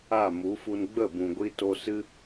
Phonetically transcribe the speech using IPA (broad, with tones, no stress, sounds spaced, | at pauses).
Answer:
a˦˨ m u˨˦ f u˧ n ɡ͡b ə˦˨ b ũ˨ ɡʷ i˧ t o˧ s ɨ˦